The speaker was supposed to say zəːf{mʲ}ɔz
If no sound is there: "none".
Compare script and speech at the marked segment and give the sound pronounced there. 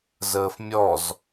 mʲ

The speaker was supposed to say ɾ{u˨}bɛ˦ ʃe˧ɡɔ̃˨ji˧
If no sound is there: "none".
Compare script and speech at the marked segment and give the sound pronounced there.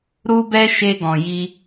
u˦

